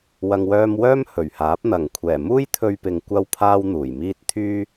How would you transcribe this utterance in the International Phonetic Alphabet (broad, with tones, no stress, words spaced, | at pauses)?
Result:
wɐ˨ŋwœː˧m wœː˥mhɵ˨˩ɥhaː˨˥p̚ n̪ɐ˨˩ŋkʷʰɛː˨˩ muː˥jt̪ʰɵ˧ɥpɪ˨ŋ kʷɐ˥wpʰaː˥wn̪uː˨˩jmiː˥t̚ t̪ʰyː˥